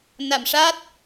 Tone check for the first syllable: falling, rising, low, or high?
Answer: low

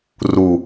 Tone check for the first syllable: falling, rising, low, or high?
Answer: low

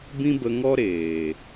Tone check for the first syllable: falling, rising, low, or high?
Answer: high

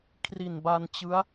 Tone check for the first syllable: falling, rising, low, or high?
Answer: low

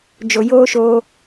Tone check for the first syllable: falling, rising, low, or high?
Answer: low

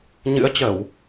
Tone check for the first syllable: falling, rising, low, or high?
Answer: rising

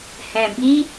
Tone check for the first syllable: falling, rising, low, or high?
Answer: low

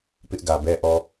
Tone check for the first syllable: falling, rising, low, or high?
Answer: high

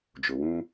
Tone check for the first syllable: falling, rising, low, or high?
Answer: low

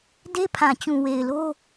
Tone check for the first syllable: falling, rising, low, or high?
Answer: high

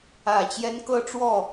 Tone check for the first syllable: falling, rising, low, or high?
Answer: low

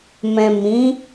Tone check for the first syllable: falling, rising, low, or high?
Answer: low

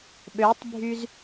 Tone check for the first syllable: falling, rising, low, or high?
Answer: rising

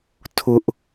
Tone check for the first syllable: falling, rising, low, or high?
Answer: high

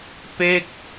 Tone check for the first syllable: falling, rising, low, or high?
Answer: falling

